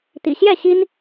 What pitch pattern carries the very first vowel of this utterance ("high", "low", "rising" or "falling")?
low